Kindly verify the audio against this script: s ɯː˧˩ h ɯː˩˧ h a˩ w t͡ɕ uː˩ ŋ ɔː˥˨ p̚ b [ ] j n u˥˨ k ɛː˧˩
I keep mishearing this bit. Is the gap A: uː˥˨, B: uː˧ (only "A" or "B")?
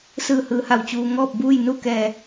A